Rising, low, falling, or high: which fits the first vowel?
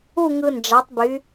falling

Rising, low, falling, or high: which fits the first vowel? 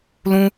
high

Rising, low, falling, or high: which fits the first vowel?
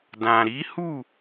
low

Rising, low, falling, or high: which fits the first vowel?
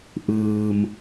low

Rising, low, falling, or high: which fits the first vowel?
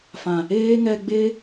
low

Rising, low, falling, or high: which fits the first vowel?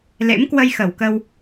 rising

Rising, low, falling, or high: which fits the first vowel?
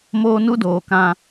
high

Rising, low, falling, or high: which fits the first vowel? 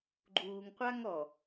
low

